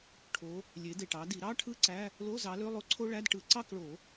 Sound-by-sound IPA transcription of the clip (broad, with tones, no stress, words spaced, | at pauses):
ʈʰo˨˦ | lʲe˨˦de˨˩ʈɑ˨˦di˨˩˦ ɾɑ˧˥˧ʈʰɯ˥ ǀæ˧˥˧ | lo˧˥˧zɑ˨˦lø˧˥˧ lˠo˥ǀʰo˥ ɭæ˧˥˧d ʈɯ˨˩˦ǀɑ˥˨kɭo˨˩˦